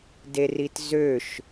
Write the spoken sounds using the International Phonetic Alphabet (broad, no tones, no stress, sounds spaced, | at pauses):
d e r i t z ø ʃ